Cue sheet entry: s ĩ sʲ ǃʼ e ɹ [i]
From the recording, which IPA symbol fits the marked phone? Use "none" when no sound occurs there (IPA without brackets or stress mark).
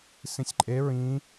ĩ